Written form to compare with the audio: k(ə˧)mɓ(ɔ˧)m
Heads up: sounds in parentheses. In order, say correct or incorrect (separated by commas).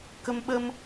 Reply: correct, incorrect